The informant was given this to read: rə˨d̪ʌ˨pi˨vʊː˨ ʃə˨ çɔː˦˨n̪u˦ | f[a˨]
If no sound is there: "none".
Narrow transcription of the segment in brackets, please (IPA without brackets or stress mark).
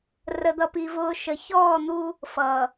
ʌ˨